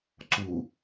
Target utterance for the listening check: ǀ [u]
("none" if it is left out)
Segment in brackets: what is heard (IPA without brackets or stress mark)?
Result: u